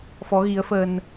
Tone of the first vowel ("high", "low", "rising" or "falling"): rising